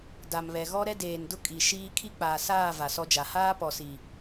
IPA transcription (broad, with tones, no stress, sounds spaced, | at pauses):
d a˨ m β ɛ˨ ɣ ɔ˦ ɾ ɛ˦ d eː˨ n d ʊ˦ kʼ i˨ ʃ iː˦ kʰ i˦ k͡p aː˨ s aː˦˨ v a˨ s ɔ˦ d͡ʒ a˨ h aː˦ p ɔ˨ s i˨